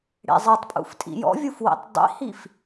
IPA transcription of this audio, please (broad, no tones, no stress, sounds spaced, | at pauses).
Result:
ɽ ḛ zˤ ɜ tˤ pʼ ṵ f tʼ ḭ j ɔ̰ vʲ u f w ḭ tˤ dˤ ḭ h i f